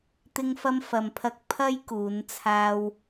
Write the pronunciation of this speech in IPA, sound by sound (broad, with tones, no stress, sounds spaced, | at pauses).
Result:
t̪ ɪ˧ ŋ f ɐ˧ m f ɐ˨ m pʰ ɐ˧ k̚ pʰ ɐ˥ j k uː˨˧ n t͡sʰ aː˥ w